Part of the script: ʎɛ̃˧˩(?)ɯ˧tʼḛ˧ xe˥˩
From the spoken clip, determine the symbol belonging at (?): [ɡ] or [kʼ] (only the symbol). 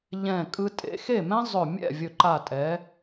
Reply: kʼ